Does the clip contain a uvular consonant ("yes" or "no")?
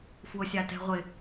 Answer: yes